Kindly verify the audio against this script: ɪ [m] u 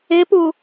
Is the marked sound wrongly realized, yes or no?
yes